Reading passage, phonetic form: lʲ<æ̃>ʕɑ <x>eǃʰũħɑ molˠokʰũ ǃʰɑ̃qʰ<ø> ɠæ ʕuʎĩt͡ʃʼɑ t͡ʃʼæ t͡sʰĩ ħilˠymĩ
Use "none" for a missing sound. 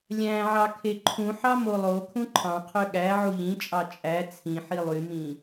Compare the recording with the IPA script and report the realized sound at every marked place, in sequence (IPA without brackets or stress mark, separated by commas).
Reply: æ̃, kʰ, ø